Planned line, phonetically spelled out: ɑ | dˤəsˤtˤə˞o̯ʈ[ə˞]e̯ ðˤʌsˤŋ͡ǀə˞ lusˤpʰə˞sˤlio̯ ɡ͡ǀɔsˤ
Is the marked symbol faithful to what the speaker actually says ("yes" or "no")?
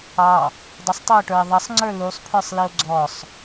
yes